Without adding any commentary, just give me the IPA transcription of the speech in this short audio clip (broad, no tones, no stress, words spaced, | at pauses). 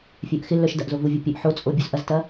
fʲœʔxɪlːœʃ dɐʔzovuvʲɐ pʲœʔħot͡sʼo bʲuzʔɐztɐ